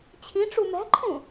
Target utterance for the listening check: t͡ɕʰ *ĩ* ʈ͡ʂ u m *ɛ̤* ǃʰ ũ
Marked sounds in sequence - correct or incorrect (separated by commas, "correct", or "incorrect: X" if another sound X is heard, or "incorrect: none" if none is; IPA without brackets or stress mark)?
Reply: correct, correct